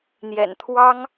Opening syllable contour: low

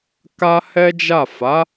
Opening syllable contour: high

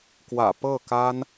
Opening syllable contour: low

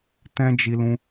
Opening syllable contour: high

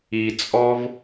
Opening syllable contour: low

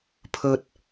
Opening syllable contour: low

